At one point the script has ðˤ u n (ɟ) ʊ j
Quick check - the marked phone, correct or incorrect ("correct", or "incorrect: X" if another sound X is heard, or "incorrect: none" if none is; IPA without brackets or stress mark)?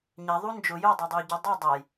incorrect: d͡ʒ